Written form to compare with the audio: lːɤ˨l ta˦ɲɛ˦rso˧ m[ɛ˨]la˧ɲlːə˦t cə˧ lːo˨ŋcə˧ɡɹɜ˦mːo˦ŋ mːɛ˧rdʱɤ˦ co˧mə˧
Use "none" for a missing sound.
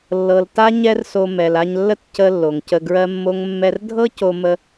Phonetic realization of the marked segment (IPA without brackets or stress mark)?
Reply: ɛ˨